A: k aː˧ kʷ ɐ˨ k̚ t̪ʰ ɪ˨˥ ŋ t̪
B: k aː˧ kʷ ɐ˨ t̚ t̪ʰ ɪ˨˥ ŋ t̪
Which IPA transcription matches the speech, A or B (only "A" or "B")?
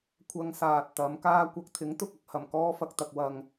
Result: A